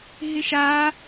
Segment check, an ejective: absent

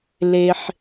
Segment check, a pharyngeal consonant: present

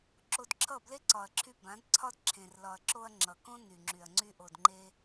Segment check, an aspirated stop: present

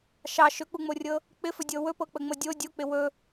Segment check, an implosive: absent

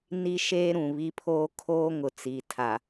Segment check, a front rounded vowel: absent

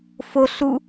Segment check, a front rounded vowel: absent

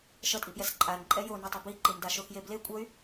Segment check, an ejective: present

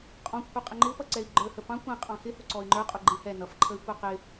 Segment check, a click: present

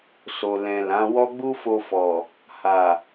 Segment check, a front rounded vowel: absent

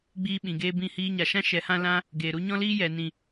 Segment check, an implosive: present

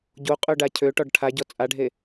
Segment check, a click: absent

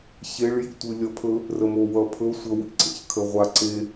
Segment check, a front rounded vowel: absent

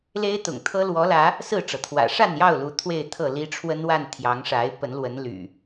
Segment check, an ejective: absent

